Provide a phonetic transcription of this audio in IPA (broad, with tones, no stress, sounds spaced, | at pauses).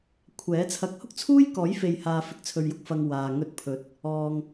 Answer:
kʷʰ ɛː˨˥ t͡sʰ ɐ˨˥ k̚ h ʊ˥ k̚ t͡sʰ uː˥ j k ɔː˨˥ j f e˨ j h aː˨ f ɪ˨ k̚ t͡sʰ ɵ˨ ɥ j ʊ˨ k̚ f ɐ˨ ŋ w aː˨ ŋ ɵ˧ t̚ pʰ ɵ˨˥ t̚ | ɔː˨ ŋ